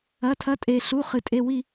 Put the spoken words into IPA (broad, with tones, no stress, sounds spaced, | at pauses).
ɐ˩˧˩ tʰ ɐ˨˦ tʼ e˩ ɬ u˩˧˩ χ ɨ˩ tʼ e˩˧˩ w i˦˨